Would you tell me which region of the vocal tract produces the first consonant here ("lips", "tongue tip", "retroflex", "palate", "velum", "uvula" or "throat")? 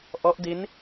throat